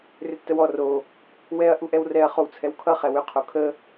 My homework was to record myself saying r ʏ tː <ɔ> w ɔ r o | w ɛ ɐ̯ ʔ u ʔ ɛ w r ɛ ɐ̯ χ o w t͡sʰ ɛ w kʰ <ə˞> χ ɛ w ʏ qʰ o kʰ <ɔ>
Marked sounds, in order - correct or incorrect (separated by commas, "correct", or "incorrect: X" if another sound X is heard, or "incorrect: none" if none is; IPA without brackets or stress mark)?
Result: incorrect: ə, incorrect: ʌ, incorrect: ə